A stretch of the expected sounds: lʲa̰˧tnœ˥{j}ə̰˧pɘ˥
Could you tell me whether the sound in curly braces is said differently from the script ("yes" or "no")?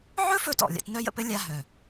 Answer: no